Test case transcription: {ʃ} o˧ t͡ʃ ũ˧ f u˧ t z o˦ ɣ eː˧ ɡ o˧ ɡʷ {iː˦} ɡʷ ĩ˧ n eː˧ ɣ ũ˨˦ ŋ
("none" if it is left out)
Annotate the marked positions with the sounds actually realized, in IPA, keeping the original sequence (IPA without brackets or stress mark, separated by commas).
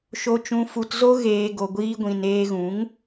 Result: ʃ, iː˦